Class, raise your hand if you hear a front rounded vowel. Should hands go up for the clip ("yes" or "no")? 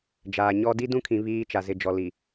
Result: no